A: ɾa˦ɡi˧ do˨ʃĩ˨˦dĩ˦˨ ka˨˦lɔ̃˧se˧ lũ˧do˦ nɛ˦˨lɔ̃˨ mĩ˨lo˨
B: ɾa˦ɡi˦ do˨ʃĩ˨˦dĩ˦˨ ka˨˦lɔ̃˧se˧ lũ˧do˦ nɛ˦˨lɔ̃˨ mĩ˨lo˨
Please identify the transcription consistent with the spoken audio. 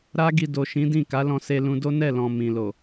A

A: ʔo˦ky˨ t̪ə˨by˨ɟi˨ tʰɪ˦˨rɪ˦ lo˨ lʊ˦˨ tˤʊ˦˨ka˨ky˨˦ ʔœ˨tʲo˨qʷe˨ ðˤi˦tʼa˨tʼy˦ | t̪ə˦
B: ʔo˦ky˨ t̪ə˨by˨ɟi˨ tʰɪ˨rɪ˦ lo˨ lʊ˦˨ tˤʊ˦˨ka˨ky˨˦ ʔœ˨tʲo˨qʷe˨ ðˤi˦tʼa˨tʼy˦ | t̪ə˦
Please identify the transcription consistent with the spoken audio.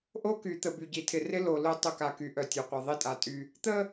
B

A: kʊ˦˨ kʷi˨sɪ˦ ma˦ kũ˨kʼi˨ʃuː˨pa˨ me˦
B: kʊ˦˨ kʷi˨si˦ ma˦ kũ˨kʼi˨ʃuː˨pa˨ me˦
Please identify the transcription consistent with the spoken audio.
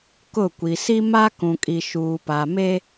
B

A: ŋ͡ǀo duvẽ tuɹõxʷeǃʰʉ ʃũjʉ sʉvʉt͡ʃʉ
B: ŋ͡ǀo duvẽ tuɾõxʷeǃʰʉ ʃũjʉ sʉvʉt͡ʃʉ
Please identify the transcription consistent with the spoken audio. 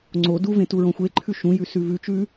A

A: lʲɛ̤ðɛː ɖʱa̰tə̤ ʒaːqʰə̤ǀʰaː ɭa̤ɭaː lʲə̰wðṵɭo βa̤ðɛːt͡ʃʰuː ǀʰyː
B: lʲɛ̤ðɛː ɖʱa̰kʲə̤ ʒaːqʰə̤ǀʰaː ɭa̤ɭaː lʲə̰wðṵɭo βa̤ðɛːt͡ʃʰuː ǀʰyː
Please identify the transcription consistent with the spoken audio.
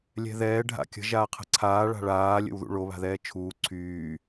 B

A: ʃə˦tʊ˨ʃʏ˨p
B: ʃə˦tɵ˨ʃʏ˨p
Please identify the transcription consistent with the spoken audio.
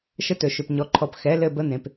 B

